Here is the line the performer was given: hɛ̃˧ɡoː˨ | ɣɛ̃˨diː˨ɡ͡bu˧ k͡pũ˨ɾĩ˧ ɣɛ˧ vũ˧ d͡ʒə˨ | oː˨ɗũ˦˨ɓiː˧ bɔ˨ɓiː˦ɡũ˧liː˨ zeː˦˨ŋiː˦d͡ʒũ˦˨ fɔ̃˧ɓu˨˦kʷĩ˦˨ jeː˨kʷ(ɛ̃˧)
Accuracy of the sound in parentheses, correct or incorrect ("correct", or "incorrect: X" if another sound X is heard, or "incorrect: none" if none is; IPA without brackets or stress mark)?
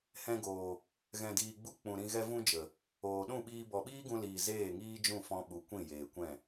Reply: incorrect: ɛ̃˦˨